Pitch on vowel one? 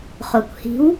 low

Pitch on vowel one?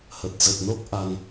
low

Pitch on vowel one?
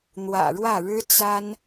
low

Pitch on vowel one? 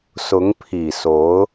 rising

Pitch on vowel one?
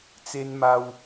high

